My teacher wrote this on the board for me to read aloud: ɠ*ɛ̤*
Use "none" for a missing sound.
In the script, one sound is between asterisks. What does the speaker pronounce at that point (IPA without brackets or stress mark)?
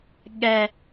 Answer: ɛ